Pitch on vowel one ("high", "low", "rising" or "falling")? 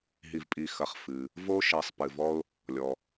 low